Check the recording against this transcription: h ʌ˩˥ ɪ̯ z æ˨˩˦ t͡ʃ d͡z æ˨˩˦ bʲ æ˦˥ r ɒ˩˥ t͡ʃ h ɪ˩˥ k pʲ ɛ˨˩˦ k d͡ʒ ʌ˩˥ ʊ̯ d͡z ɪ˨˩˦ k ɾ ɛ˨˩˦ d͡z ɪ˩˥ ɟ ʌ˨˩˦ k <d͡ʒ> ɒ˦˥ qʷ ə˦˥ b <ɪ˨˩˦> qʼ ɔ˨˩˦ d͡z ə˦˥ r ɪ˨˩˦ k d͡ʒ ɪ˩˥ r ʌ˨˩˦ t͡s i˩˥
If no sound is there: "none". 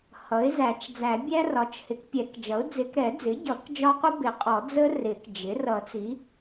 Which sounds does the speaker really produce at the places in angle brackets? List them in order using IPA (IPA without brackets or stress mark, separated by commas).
d͡ʒ, ɪ˨˩˦